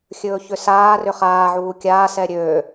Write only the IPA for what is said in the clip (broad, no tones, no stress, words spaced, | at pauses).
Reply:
xʲɵːçʏsaː rʏχaː ʕuːkʲaː sɛɾʲøː